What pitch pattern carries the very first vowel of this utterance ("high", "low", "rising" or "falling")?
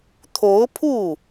rising